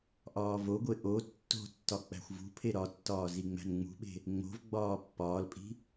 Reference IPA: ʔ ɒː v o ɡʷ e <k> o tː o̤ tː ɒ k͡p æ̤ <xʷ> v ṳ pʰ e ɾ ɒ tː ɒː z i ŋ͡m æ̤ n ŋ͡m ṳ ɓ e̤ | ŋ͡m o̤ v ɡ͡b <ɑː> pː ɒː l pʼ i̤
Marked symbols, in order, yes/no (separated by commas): no, yes, no